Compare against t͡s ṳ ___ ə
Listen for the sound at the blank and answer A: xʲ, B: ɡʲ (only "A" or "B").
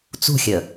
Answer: A